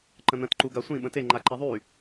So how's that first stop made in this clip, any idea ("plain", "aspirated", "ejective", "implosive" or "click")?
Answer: click